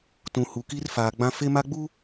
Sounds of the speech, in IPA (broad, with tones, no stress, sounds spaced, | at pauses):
t ũ˨ h u˨ k i˦ r f aː˨ ɡ͡b ã˦ f e˦ m a˦ ɡ͡b u˦